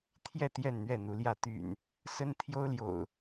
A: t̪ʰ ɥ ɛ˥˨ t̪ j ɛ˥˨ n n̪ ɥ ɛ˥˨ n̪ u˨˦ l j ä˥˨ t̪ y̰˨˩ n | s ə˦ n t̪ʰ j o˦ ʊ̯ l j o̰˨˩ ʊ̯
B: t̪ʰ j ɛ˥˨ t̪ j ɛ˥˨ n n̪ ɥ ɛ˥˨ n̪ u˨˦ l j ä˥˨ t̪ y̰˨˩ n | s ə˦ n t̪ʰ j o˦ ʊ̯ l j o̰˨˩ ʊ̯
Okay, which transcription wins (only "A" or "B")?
B